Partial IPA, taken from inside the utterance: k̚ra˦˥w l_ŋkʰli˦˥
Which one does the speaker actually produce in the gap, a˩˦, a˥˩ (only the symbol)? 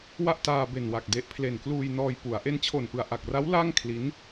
a˥˩